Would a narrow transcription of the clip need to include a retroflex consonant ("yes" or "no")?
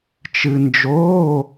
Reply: no